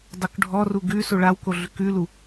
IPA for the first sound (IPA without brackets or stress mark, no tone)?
dˤ